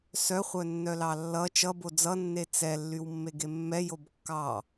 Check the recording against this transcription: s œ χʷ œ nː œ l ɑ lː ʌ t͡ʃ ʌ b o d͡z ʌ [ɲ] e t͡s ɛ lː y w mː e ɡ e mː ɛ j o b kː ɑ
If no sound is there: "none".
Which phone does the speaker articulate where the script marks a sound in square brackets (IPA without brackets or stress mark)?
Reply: nː